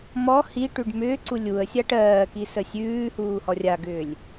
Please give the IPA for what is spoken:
m ɔ h i ʈ ʉ ɖ m ʏː ǀ u lʲ u ə̯ sʲ a ʈ ɜː k i s ə sʲ ʉː h uː h ɔ rʲ a ɡ ʏː lʲ

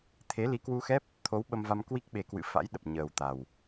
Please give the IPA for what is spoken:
t̪ʰ e˨˦ l i˨˦ k w u˧ x ɛ˦˥ p̚ | t̪ʰ o˨˦ w ɓ ə˧ m v a˧ m k w i˦˥ k̚ ɓ e˨˦ k w ɨ̰˧˨ f a̰˧˥ j ɗ ə˨˩ p̚ ɲ əː˨˩ w t̪ a˨˩ w

